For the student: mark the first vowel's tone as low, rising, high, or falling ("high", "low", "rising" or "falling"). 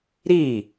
falling